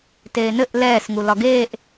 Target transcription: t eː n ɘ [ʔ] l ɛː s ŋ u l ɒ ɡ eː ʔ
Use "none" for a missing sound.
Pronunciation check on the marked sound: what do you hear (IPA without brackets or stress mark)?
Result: ʔ